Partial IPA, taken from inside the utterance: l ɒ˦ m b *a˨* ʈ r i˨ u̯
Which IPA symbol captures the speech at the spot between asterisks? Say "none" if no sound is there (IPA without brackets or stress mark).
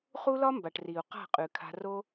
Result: a˨